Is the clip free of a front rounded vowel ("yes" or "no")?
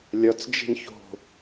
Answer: yes